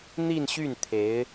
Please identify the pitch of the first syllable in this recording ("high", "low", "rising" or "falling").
falling